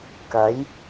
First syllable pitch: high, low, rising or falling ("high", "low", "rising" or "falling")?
rising